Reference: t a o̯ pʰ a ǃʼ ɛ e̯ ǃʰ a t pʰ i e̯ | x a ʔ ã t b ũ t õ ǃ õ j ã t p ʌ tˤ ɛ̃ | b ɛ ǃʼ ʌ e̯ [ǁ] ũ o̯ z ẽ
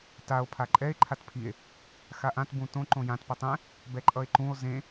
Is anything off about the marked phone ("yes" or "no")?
yes